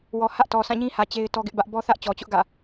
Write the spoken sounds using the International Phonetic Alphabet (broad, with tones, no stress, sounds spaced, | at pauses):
w ɔ˨ h ä˦ ʔ t ɔ˨ sʰ ã˦˨ ɲ ĩ˦ h ä˨ t͡ɕ e˦ ɪ̯ t ɔ˦ ɡ ɪ˦ ʔ b ä˦ ʔ b ɔ˦ θ ä˦ ʔ t͡ɕ ɔ˨ t͡ɕ ʊ˦ ʔ ɡ ä̰˦˨